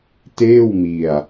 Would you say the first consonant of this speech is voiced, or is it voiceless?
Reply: voiceless